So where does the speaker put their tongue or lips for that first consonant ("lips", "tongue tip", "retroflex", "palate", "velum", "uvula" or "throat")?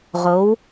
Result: uvula